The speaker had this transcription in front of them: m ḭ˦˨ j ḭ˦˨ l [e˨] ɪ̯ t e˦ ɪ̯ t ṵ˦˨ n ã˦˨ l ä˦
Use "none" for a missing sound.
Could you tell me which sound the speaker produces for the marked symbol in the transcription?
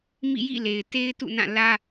e˨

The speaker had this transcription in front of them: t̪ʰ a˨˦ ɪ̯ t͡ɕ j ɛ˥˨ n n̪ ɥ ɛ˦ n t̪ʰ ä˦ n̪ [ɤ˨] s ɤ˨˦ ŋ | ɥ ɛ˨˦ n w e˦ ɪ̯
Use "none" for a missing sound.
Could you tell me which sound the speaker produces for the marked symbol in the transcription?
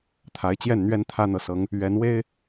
ɤ˨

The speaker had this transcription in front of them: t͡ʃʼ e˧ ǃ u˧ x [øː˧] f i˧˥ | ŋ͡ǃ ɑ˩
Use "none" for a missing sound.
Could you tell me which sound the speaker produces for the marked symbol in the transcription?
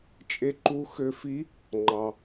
ø˧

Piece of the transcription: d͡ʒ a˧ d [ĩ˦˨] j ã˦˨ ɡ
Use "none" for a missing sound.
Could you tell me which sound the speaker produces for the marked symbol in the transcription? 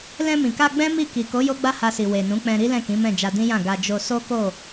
ĩ˦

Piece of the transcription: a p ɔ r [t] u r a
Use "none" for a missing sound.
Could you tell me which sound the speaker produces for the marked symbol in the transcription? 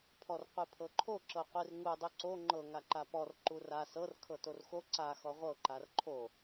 ǃ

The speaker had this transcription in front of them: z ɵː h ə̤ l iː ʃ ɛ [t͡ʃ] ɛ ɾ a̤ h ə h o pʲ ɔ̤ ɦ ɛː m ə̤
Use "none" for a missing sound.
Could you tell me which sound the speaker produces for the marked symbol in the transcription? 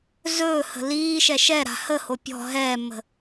ʃ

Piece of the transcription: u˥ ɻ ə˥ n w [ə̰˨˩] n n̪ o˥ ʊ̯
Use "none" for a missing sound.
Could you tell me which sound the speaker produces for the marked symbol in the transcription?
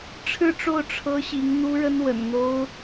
ə̰˨˩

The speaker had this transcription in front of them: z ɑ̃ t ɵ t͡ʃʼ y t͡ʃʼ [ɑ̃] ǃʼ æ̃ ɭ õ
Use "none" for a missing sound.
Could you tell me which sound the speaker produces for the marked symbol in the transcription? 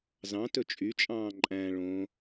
ɑ̃ː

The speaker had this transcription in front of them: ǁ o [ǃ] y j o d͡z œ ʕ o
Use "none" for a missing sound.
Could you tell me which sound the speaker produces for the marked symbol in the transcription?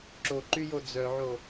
ǃ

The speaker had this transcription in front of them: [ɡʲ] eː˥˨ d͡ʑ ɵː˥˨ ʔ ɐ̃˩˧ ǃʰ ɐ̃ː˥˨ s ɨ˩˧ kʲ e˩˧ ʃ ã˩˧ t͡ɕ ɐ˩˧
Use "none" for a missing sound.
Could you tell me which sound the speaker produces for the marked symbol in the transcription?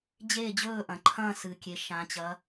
d͡ʑ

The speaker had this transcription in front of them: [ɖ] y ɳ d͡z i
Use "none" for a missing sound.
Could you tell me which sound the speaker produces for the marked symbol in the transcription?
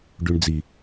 ɖ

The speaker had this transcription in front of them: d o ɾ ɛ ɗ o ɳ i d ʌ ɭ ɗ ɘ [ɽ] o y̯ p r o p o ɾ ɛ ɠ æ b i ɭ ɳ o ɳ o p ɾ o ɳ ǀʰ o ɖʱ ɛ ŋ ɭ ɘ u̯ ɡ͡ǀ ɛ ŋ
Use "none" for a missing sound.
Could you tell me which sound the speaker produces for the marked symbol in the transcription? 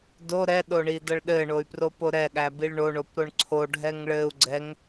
ɳ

